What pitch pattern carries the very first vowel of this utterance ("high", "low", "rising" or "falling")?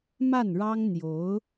falling